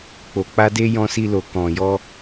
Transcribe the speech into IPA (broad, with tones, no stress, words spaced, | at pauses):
k͡po˨k͡pa˧de˧ jɔ̃˧si˧lo˨ kɔ̃˨jɔ˧